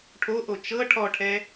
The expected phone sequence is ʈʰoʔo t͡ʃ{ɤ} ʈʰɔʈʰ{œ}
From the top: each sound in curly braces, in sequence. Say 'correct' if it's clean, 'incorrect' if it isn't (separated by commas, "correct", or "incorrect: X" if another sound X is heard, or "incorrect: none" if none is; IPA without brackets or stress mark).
correct, incorrect: ɛ